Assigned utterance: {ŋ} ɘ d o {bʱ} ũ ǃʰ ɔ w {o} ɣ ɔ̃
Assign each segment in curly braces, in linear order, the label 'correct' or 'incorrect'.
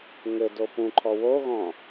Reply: correct, incorrect, correct

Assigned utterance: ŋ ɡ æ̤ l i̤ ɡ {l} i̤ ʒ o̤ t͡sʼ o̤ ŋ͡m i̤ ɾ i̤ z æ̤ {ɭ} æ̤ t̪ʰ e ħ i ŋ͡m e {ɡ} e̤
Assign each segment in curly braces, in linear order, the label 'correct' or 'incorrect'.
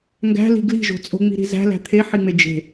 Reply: correct, incorrect, incorrect

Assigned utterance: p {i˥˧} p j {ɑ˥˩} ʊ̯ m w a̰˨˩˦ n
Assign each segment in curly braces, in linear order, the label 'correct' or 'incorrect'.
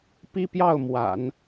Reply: incorrect, correct

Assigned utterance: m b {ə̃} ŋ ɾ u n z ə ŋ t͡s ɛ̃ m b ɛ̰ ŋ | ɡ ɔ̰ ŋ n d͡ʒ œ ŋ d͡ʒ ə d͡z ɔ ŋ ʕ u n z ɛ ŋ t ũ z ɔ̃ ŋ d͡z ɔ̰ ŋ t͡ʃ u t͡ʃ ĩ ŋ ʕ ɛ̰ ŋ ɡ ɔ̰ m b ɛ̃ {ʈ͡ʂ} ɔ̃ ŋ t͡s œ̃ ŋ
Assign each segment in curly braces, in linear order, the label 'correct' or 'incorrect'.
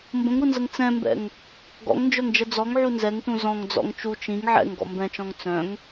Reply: correct, incorrect

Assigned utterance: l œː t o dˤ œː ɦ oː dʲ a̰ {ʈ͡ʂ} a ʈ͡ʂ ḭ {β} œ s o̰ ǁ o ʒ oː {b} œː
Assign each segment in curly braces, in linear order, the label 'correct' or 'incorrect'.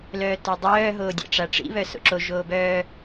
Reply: correct, correct, correct

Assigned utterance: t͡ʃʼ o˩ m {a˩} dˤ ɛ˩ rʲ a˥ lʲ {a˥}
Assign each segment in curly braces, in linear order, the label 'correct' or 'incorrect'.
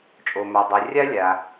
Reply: correct, incorrect

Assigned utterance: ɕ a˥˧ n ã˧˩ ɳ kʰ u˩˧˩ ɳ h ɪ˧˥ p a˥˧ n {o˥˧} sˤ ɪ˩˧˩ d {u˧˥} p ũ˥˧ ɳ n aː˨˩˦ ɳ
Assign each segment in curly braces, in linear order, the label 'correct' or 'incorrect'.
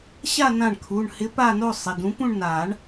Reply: correct, incorrect

